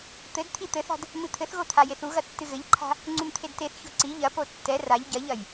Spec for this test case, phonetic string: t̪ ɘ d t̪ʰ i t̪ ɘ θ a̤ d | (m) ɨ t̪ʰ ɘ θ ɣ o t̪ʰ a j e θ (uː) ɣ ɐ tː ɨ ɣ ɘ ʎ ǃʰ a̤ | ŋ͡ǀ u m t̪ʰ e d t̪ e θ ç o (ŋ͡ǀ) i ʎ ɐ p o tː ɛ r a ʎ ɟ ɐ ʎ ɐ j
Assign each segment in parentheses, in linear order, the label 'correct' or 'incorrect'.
correct, incorrect, incorrect

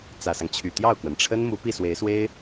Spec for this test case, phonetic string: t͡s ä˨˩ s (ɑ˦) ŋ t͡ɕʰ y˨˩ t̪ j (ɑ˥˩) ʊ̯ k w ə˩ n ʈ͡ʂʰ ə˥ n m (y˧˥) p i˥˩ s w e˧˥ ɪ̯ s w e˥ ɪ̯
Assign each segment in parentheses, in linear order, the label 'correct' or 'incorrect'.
correct, correct, incorrect

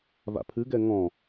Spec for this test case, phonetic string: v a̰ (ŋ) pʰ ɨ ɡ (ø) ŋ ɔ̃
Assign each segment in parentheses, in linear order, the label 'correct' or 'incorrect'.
incorrect, incorrect

